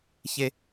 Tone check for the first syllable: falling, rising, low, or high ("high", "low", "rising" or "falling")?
high